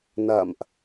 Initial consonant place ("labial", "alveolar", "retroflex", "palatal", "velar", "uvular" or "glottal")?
alveolar